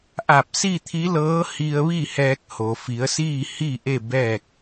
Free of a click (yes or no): yes